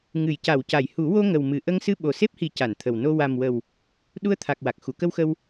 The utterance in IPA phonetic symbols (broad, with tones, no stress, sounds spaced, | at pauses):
ŋ ɨ˨˩˨ j c a˨˩˨ w c a˨˩˨ j h u˨˩˦ w o˧ ŋ ə˨˩ w m ɨ˨˩ ʔ ə˧ ŋ s ɨ˧ ɓ o˨˩ s e˦˥ p̚ h i˨˩˦ c a˨˩˨ n t̪ʰ ə˨˩ w n o˧ w a˨˩ m w ə˨˩ w | ɗ u˧ ə̯ t̪ʰ a˨˩ k̚ w a˨˩ k̚ x u˨˩˦ k ə˧ w x ə˧ w